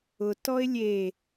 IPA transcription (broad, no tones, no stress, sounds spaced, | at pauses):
ʊ t ɔ ɪ̯ lʲ e